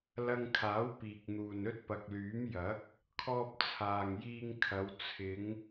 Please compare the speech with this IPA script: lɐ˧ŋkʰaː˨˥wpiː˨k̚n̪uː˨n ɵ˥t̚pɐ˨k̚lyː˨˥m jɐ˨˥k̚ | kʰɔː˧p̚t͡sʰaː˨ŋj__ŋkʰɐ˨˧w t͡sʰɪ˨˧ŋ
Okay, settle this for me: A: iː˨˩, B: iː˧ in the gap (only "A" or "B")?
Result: B